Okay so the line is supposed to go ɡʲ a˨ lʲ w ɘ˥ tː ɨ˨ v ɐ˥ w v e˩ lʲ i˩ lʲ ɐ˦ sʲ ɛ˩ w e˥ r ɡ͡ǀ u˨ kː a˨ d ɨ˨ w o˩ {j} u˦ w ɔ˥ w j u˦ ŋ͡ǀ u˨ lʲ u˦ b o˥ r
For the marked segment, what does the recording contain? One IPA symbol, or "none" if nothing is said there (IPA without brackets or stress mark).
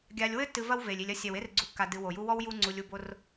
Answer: j